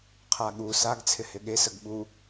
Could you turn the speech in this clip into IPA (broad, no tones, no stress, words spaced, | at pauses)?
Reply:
qʰaɠu saɡ t͡sʰɪhɪɠe səɡɓu